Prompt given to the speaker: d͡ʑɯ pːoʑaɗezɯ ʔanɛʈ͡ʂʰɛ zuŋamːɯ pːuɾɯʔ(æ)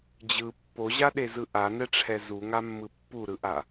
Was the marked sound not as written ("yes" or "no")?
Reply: yes